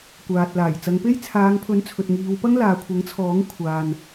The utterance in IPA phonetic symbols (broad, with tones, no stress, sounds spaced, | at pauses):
kʷ aː˨ t̚ l aː˨˩ j t͡s ɐ˨˧ ŋ p e˥ j t͡sʰ aː˨˧ ŋ pʰ ɵ˨˥ n t͡sʰ ɵ˨ t̚ ŋ iː˨˧ w p ɐ˥ ŋ l aː˨ kʷʰ ɐ˨˥ ŋ t͡sʰ ɔː˨˥ ŋ kʷʰ aː˨ n